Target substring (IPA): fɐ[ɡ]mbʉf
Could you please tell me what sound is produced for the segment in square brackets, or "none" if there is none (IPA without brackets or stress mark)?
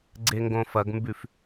ɡ